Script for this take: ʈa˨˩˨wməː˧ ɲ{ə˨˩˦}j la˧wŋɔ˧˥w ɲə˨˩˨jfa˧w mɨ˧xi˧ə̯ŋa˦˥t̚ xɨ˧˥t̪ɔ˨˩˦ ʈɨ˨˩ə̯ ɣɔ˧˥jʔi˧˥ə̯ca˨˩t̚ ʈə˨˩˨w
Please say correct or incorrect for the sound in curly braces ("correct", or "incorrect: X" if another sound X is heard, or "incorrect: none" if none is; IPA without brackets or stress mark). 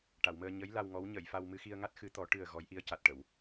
incorrect: ə˧˥